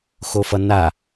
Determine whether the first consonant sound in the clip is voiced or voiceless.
voiceless